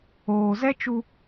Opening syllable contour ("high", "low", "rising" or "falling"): low